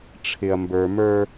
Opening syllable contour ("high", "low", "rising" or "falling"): low